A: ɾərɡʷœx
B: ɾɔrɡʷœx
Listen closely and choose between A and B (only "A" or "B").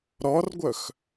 B